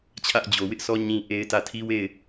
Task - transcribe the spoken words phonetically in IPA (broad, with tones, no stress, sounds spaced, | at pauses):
t͡ɕʰ ä˦ ʔ d͡ʑ o˨ w ɪ˦ ʔ sʰ ɔ˦ ɲ ĩ˦ ʔ e˦ ɪ̯ t ä˦˨ tʰ i˦ w e˦˨ ɪ̯